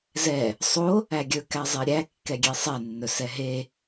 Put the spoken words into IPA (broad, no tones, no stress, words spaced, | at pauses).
zɛ | sˤo | æɡʲɵ kæzˤeɾʲæ kːɛɡʲesˤɛ nːɵsɛɦe